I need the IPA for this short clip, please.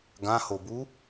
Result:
ɡ ã h o b u

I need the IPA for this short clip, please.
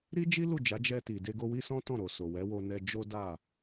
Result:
ɾ i˦ d͡ʒ i˦ l u˦˨ d͡ʒ a˨˦ d͡ʒ ɛ˧ t i˨ d e˧ ɡ o˧ w i˦ s ɔ̃˦ t ɔ̃˦˨ ɾ o˨ s o˨ w ɛ˨˦ w o˧ n ɛ˧ d͡ʒ o˦ d a˦˨

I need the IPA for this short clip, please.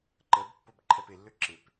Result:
ǃ ə b pː o b ǃʰ ɛ p ɪ lː ø ǁ ɪ p

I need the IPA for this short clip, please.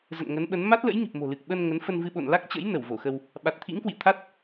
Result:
z ə̰˧˨ n ŋ ə˨˦ n ɓ ə˨˦ n m a˦˥ t̚ l ə̰˧˥ j ŋ i˨˩ p̚ m o̤˨˩ l ɨ˨˩ k̚ ɓ ə˧ n ŋ ə˨˦ n f ə˧ n v ɨ˧ ɓ o̰˧˨ n l a˦˥ k̚ t͡ɕ ə̰˧˥ j n ə˧˩ w v o˧˩ x ə˧ w | ɓ a˨˩ t̚ t̪ʰ ḭ˧˥ ŋ k w ḭ˧˨ ə̯ t̪ʰ a˦˥ t̚

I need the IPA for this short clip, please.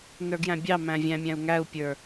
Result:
n ə˞ ɡ j æ̃ bʲ ɑ m æ̃ vʲ æ̃ mʲ æ̃ u̯ ŋ æ u̯ pʲ ə˞

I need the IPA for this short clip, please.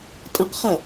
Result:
tʼ ɐ̃ q χ ɐ

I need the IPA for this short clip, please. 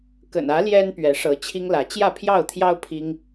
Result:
k ə̰˨˩ n ä˨˦ l j ɛ˦ n p ɥ ɛ˨˦ ʂ ɤ˨˦ t͡ɕʰ i˦ ŋ l ä˨˦ t͡ɕ j ä˥˨ pʰ j ɑ˥˨ ʊ̯ t̪ʰ j ɑ˦ ʊ̯ pʰ i˦ ŋ

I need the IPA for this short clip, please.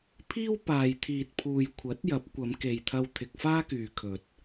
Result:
pʰ iː˥ w p aː˨ j t̪ʰ iː˨ t̚ pʰ uː˨ j kʷʰ ɐ˨˥ t̚ j ɐ˨˥ p̚ kʷ ɐ˨˧ m k e˨ j t̪ʰ ɐ˧ w t̪ʰ ɪ˨ k̚ f aː˥ k yː˨ kʰ ɵ˨ t̚

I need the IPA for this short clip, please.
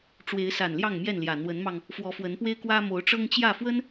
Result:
ʈ͡ʂ w e˨˦ ɪ̯ s a˨˩ n l j ɑ˥˨ ŋ m j ɛ˥˨ n l j ä˨˩ n̪ w ə˨˦ n m ɑ˧ ŋ | f w ɔ˨˦ f w ə˨˦ n p w e˦ ɪ̯ k w ä˦ m o˨˦ ʊ̯ ʈ͡ʂ ɤ˦ ŋ t͡ɕ j ä˥˨ f w ə˦ n

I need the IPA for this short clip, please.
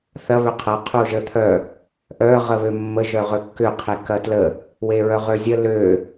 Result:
θ ɐ β ʏ qʰ ɐ qʰ u ʒ ə t̪ʰ œ | ʔ œ ʁ ə β ø mː ə ʒ œ ʁ ø kː ʏ qʰ e k ɐ t l ə | w e ɹ œ ʁ ø zʲ ə l ø

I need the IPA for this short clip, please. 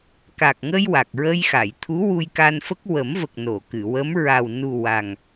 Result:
k a˨˩ k̚ ŋ ə˧ j w a˨˩ k̚ ɹ ə˧ j x a˨˩˨ j t̪ʰ u˧˥ w u˧ j k a˧ n f ə˦˥ k̚ w ə˨˩˦ m v ə˨˩ k̚ n o˨˩˨ k ɨ˨˩˨ w ə˧˥ m ɹ a˨˩ w n u˨˩ w a˨˩ ŋ

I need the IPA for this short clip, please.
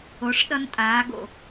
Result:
o˨˦ ʂ ɗ ʌ˦ n tʼ aː˨˦ ɡ o̰˦˨

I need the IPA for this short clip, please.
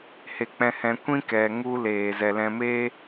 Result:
h e˧ k͡p ɛ̃˧ h ɛ̃˧ kʷ ĩ˦ k ɛ˨ ŋ u˦ l eː˨ z ɛ˨ l ɛ̃˧ m eː˦

